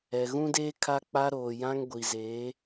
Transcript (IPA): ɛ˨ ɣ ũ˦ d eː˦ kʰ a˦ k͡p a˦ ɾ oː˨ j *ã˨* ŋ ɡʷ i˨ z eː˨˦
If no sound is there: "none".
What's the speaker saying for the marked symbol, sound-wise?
ã˦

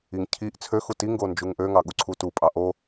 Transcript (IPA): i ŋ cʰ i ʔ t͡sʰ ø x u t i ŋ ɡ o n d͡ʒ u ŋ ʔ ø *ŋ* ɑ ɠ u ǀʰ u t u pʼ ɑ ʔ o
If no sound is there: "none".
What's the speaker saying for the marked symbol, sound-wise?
ŋ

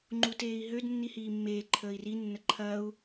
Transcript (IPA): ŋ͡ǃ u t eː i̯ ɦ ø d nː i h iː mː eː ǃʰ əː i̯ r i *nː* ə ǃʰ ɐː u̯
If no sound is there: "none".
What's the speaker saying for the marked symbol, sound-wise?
nː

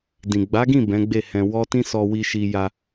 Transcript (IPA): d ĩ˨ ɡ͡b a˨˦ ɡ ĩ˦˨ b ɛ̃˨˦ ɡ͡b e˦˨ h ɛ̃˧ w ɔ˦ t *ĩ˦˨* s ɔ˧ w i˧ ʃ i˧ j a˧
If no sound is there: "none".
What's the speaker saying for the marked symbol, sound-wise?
ĩ˦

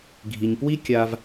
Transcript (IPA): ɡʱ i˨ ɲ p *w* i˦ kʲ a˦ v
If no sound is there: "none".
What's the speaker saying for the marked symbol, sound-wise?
w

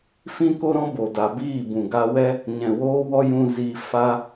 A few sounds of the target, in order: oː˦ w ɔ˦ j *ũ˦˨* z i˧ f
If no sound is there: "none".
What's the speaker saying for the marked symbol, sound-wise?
ũ˧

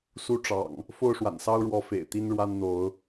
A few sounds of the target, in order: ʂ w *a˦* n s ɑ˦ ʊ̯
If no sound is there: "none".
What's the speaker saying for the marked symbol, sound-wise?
a̰˨˩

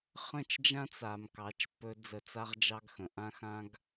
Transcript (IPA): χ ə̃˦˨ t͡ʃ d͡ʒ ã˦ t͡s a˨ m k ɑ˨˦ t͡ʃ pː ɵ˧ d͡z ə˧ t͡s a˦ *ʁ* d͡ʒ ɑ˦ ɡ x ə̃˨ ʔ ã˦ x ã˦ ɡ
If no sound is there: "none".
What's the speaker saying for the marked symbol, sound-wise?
ʁ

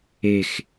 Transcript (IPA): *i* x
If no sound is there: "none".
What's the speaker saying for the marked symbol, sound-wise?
e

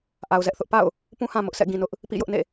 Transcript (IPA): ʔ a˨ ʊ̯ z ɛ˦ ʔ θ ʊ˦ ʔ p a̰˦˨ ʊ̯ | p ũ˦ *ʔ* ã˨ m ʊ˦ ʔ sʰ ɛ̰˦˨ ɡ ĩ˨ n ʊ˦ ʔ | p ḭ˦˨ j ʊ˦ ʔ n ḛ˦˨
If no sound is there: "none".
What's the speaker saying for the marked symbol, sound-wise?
h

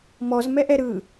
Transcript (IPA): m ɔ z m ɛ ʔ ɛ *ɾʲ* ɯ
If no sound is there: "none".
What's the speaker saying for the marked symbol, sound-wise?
ɾ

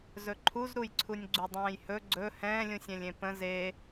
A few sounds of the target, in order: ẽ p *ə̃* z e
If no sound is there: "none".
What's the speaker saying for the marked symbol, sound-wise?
ə̃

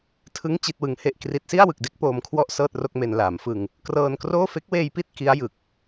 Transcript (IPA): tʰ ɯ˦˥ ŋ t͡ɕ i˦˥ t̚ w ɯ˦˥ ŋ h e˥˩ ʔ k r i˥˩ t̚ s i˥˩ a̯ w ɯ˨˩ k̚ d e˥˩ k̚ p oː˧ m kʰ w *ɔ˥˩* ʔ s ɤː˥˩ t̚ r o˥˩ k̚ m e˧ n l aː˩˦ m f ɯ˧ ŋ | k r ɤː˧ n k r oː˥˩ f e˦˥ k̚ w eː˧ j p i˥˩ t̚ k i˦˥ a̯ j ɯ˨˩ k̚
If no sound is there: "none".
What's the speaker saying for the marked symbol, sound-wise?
ɔ˥˩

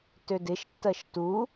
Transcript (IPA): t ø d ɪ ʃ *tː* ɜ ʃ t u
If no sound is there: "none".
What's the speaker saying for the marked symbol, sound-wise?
tː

